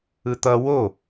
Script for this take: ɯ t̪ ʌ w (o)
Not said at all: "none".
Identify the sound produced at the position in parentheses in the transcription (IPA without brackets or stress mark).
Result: o